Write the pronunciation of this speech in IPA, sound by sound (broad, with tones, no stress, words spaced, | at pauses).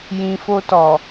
jĩ˨fo˧tɔ˨